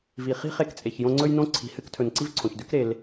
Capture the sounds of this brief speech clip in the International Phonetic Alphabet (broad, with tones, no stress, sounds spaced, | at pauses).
v i˩ χ i̤˥ χ e˦ k t͡sʼ e˩ ç j õ˦ ŋ͡ǀ ɵ˥ j n õ˥ ǀʰ i̤˨ h ɨ˥ k tʰ ɵ˨ n ǀ i˥ v ǀʰ õ˩ ç d ʉ˥ k ɾ e˨ l